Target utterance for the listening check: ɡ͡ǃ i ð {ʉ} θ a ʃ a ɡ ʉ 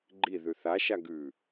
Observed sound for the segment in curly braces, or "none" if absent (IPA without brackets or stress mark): ʉ